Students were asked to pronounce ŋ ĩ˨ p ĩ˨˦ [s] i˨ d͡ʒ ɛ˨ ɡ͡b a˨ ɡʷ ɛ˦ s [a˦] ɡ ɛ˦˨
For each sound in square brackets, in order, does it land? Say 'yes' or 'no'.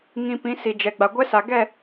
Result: yes, no

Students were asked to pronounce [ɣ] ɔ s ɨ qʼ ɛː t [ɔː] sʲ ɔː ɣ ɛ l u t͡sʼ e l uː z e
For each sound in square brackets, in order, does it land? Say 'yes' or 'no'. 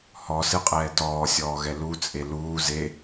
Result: no, yes

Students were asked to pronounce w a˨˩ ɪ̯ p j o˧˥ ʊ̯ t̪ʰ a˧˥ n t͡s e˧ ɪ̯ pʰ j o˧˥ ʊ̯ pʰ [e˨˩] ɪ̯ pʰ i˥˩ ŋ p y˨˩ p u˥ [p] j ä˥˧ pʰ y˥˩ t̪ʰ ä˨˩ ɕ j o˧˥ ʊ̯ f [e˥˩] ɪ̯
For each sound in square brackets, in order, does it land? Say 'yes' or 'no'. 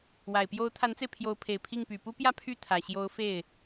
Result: yes, yes, yes

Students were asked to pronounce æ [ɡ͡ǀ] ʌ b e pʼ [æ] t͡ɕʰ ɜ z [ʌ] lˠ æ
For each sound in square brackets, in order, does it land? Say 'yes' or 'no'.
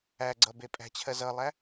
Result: yes, no, yes

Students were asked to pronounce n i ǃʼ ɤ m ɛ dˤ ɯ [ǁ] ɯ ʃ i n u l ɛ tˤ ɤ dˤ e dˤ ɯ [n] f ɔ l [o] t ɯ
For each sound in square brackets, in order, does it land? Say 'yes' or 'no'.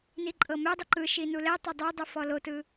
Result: no, no, yes

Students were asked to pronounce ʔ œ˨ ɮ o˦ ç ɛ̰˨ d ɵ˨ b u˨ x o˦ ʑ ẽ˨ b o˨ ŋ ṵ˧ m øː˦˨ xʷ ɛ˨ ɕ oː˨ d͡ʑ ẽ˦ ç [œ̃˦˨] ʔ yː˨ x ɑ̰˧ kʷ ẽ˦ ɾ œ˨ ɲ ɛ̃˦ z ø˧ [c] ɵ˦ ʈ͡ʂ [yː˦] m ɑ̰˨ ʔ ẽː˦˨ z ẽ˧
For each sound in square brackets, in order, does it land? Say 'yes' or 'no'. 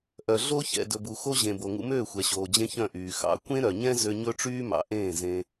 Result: yes, no, yes

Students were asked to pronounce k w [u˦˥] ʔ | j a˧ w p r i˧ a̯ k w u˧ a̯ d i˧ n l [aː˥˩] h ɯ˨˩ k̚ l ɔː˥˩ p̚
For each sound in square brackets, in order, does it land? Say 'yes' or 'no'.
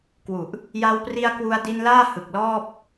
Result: no, yes

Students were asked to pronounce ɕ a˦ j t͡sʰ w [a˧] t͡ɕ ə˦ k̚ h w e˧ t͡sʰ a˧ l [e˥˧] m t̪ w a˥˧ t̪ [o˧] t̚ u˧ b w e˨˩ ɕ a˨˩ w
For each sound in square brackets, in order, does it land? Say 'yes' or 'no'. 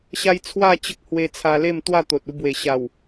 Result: no, yes, no

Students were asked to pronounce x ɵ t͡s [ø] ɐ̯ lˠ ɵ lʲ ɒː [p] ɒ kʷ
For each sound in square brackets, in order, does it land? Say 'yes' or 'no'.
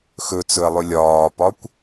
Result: no, yes

